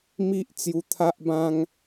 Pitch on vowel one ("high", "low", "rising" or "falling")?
high